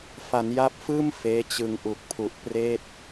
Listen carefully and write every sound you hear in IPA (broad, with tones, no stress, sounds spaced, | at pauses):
f a˩˦ n j a˦˥ p̚ f ɯː˥˩ m f eː˦˥ t͡ɕ ɯ˧ ŋ ʔ u˨˩ k̚ pʰ u˨˩ ʔ p r eː˥˩ t̚